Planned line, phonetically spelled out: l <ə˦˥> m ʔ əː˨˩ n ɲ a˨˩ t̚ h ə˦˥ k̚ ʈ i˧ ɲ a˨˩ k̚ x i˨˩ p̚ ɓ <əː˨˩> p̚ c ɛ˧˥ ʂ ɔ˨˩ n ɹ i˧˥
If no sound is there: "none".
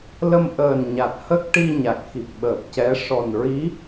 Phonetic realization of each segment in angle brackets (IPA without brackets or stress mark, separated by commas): ə˧, əː˨˩